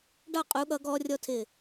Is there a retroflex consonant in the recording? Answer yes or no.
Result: yes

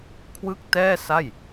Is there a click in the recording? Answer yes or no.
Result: no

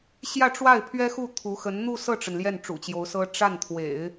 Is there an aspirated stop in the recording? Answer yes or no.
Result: yes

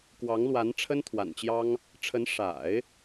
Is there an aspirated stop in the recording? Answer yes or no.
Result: yes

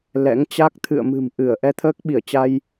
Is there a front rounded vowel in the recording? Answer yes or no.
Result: no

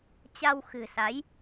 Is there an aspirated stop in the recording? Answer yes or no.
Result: no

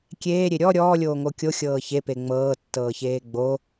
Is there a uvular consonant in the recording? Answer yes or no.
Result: no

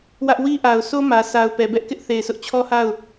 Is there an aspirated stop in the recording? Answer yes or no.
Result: yes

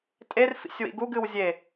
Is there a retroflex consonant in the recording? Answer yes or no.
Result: no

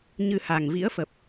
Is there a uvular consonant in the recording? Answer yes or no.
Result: no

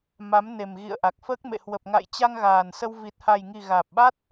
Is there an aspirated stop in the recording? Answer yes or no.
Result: no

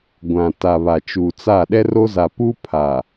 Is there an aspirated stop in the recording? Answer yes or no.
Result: yes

